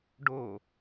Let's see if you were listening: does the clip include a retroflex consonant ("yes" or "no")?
yes